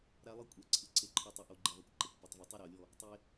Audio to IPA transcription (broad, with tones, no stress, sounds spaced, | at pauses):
ɾ a˦ lˠ ɯ˦ kʷʼ ɛ˨ ǀʰ ɯ˨ ǀ e˦ ǃʰ ɔ˦ tˤ ɤ˨ ʔ o˦ ɡ͡ǃ i˨ ðˤ u˨ kʷ ǃ ɛ˨ kʷ p ɤ˨ tˤ v u˨ tˤ u˦ ɾ a˨ ʊ̯ lʲ ɔ˦˨ | tˤ e˦